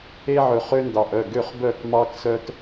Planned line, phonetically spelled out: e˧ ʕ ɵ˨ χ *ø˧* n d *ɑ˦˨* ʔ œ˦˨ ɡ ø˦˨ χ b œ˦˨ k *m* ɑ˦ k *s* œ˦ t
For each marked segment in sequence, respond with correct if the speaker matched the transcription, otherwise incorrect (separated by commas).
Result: correct, incorrect, correct, correct